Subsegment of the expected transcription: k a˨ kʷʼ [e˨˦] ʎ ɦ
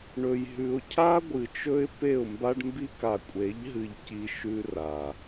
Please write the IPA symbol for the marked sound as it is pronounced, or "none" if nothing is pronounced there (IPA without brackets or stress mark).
e˨˦